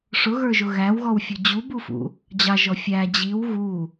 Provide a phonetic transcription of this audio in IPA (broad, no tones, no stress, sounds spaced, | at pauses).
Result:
ʂ ʊ ɣ ə˞ ʒ ʊ ɣ æ w ɣ ɔ w fʲ ʊ d͡ʑ u b u f ṵ | d͡ʑ ɑ ʒ ɔ fʲ æ d͡ʑ i w ɣ u